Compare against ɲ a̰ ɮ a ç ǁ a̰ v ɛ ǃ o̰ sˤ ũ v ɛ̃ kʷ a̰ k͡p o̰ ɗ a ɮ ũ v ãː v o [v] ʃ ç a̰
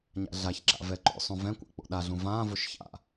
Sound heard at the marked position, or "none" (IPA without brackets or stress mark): none